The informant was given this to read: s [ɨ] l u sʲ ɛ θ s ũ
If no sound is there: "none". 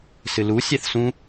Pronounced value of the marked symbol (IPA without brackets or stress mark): ɨ